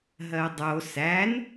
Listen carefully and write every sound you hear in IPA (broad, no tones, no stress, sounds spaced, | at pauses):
ɦ ɜ dˤ o s æ n